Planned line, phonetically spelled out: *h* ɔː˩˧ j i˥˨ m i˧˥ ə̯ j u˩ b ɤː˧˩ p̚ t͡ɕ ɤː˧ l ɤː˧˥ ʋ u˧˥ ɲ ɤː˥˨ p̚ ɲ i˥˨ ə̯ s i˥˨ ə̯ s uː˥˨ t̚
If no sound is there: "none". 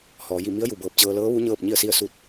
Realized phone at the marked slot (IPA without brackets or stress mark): h